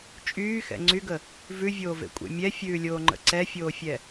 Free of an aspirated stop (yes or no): yes